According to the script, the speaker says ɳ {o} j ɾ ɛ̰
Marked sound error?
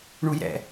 yes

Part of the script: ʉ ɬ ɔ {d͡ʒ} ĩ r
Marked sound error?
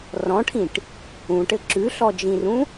no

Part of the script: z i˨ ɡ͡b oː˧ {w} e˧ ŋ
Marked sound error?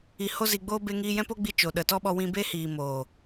yes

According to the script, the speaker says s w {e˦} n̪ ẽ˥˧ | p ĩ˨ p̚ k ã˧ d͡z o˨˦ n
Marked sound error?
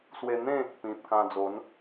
yes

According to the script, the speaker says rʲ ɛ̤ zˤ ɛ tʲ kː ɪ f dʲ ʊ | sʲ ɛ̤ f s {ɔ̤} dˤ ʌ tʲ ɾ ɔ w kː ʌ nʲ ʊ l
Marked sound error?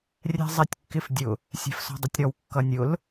no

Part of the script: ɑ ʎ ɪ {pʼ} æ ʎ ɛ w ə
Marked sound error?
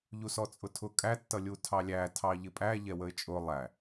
no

